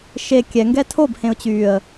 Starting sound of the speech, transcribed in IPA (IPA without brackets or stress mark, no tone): ʃ